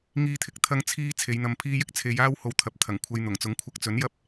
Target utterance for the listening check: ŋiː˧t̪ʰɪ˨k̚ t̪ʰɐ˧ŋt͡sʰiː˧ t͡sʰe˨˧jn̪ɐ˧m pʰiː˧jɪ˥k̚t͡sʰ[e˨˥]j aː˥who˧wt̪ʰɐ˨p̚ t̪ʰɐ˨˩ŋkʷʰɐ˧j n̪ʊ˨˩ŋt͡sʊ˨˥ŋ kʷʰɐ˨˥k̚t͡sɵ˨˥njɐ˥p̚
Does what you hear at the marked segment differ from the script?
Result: yes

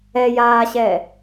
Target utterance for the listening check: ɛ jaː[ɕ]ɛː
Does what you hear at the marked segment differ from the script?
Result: no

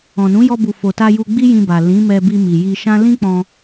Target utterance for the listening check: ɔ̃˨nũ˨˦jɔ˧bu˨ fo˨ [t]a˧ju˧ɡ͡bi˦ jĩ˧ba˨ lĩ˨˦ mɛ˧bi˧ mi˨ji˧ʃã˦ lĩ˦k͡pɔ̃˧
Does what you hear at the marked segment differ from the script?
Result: no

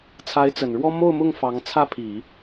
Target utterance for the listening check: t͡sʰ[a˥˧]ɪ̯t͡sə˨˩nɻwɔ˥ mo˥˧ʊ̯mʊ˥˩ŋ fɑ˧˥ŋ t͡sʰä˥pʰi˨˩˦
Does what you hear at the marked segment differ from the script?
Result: yes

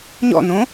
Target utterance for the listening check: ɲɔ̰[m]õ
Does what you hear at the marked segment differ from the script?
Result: yes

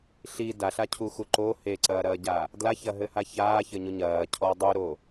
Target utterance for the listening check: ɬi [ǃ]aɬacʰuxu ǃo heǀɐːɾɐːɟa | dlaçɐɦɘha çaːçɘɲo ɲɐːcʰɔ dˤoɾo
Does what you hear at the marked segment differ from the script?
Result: yes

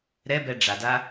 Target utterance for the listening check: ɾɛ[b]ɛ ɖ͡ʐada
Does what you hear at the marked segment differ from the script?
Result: no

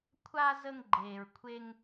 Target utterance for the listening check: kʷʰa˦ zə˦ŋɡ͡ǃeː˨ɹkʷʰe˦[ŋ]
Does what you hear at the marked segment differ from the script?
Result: no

